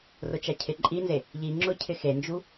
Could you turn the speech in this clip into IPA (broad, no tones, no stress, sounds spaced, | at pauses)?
r ʊ t͡ʃ a cʰ ɪ ǃʼ i n z e | ʎ i ŋ͡ǁ ʊ cʰ ɪ x e n d͡ʒ u